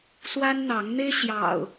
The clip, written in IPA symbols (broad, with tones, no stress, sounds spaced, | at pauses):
s w a˦ n n̪ ɑ˨˦ ŋ n̪ e˦ ɪ̯ ɕ j ɑ̰˨˩ ʊ̯